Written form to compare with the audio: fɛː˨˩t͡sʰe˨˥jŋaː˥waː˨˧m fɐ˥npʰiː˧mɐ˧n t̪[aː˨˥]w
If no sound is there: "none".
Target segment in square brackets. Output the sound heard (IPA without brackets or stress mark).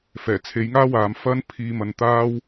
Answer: aː˥